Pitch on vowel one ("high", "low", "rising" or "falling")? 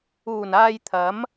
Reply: low